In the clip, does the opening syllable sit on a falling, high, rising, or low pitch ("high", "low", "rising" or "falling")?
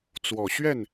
low